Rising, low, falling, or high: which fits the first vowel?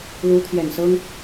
rising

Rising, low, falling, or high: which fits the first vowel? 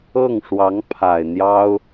falling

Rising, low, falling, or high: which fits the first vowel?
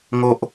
low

